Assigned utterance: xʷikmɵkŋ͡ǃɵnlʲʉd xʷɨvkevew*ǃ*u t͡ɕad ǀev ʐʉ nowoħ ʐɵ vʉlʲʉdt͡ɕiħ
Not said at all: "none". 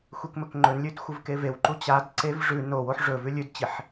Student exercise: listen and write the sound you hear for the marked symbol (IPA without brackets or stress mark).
ǃ